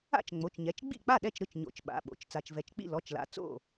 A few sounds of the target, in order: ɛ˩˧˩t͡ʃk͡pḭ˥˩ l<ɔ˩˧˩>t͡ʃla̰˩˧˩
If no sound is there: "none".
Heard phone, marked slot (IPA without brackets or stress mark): ɔ˩˧˩